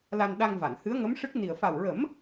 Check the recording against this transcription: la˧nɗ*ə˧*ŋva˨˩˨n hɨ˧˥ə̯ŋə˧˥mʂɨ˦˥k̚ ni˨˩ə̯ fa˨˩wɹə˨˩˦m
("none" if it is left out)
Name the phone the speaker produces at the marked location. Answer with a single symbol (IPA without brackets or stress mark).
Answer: a˧